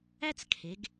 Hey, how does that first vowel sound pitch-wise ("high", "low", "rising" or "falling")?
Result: high